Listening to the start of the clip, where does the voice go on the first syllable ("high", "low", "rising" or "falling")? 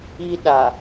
high